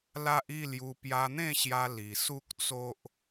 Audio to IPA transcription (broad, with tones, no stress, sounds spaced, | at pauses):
l a˦ ʔ i˥˧ l j u˧ p j a˧ n̪ ẽ˥˧ ɕ j a˧ l i˨˩ s u˦ k̚ t͡s o˦ ʔ